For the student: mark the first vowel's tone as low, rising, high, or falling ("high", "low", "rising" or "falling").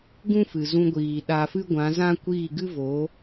high